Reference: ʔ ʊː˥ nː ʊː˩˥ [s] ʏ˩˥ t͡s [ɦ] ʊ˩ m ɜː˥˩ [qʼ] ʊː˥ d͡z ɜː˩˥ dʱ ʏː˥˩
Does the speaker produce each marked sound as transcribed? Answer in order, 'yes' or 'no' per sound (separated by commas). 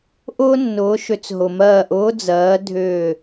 no, yes, no